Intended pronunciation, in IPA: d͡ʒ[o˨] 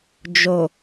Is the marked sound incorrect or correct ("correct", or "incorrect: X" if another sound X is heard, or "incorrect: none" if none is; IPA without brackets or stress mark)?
correct